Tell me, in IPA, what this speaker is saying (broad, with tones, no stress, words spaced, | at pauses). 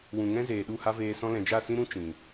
wũ˨ŋɛ̃˦zeː˨ ɗu˦˨ha˦veː˧sɔ̃˦ lɛ̃˨d͡ʒa˦˨sĩ˦ɾũ˦ t͡ʃĩ˨